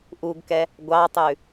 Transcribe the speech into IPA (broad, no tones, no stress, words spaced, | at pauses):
ʔuɡkɛ | ɡʷɑtˤʉ